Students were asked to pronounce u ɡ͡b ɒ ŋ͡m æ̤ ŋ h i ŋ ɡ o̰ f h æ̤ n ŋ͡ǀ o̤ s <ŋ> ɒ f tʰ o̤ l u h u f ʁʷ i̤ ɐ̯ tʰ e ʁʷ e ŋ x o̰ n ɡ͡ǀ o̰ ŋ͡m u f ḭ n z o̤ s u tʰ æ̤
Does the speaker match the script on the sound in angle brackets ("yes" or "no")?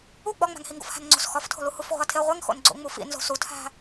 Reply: no